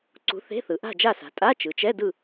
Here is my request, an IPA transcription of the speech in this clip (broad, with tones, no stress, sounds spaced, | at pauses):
ǀ ṳ˨˥ θ e̤˧˥˧ θ ɯ˩˧ ʔ a̤˥˨ d͡ʒ a˥˨ s a̤˩˧ tʼ a˧˥˧ t͡ʃ ɯ˩˧ t͡ʃ ɛ˧˥˧ d ɯ˥˨